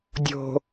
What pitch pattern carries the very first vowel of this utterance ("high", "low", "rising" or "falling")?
low